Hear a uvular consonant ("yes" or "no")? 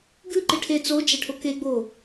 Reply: no